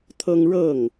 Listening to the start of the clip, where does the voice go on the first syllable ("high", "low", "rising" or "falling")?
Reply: high